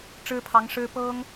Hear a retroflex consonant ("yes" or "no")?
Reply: yes